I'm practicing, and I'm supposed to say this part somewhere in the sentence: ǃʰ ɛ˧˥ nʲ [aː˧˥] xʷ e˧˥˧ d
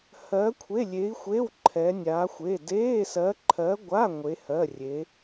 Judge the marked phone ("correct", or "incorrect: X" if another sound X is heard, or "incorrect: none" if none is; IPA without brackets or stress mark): correct